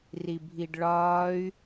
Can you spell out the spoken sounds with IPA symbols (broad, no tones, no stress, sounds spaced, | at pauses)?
r i bʱ i ɖ ɭ ɒː y̯